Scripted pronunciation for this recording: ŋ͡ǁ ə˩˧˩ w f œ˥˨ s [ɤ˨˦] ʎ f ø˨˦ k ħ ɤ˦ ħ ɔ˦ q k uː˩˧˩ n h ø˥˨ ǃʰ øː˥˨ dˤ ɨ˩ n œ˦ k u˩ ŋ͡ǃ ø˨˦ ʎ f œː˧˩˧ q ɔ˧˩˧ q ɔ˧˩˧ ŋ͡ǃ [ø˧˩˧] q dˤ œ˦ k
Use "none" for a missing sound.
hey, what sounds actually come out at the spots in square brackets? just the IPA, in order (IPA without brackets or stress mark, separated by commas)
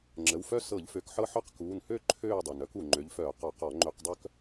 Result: ɤ˧˩˧, ø˧˩˧